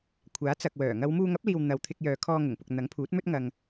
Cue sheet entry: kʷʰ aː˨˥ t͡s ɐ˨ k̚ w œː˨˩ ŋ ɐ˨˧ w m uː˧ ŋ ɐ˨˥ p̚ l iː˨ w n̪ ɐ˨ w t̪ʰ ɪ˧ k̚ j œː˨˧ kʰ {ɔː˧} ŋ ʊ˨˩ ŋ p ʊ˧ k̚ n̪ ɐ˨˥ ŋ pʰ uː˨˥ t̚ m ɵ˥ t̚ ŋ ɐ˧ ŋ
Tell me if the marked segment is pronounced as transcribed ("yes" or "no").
yes